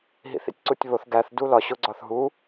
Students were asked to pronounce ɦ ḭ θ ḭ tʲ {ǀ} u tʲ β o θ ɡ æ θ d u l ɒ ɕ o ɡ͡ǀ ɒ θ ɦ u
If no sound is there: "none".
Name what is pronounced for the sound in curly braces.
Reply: ǀ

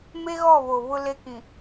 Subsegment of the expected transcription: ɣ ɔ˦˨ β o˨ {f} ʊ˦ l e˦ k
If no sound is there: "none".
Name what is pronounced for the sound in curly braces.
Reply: β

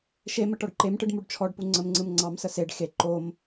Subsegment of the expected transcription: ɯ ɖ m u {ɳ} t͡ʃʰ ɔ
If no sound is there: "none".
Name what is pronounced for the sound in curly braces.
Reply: ɖ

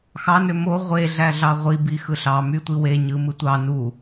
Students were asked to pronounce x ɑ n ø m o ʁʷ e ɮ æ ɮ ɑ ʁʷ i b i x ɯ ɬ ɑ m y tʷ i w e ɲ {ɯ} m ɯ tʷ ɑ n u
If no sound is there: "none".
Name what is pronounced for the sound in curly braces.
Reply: ɯ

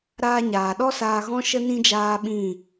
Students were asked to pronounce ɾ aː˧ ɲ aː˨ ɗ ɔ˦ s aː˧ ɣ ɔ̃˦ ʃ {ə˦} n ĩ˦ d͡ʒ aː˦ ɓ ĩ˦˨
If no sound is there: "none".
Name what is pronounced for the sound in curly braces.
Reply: ə˦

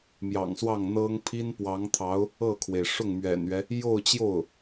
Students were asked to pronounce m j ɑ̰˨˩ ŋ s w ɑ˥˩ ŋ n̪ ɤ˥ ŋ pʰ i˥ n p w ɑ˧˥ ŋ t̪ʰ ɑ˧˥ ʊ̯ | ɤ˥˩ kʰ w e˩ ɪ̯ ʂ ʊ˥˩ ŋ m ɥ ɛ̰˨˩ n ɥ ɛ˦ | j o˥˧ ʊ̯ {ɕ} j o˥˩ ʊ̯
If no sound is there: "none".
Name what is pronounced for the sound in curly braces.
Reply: t͡ɕ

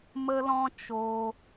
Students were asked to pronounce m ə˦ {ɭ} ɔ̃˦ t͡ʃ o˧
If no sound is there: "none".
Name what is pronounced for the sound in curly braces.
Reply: l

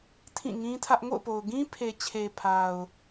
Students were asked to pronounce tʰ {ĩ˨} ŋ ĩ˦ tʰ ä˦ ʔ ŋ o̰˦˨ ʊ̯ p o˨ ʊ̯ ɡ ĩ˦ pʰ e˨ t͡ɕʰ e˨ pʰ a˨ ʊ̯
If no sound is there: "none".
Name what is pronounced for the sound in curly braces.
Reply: ĩ˦˨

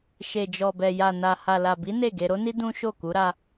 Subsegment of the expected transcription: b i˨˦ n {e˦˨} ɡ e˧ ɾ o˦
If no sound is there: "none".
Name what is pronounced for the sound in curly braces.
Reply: e˦˨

